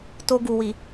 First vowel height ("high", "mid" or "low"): mid